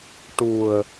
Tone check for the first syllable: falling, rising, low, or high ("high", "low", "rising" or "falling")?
low